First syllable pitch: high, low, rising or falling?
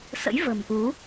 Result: rising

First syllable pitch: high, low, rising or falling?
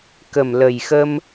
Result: low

